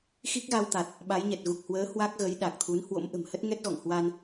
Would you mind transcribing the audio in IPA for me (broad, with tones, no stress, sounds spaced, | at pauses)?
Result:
x i˦˥ k̚ ɣ a˧ w t̪ a˨˩ t̚ | ɓ a˨˦ j ɲ ɛ˨˩ t̚ ɣ u˨˩ k̚ h w əː˨˦ h w a˦˥ k̚ ɣ ə˨˦ j ɗ a˨˩ k̚ t̪ʰ u˨˦ n h w o̰˧˥ m ʔ ə̤˨˩ m h ə˦˥ t̚ ŋ ɛ˦˥ t̚ ɣ ɔ̰˧˨ ŋ h w a˧ n